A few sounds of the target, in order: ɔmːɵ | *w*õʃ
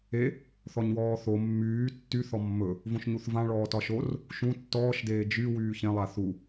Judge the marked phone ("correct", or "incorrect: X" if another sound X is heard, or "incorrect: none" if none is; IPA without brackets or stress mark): incorrect: v